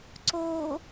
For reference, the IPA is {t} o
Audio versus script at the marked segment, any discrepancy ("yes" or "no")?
yes